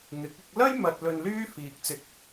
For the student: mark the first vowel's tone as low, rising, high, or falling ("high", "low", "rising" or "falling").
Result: rising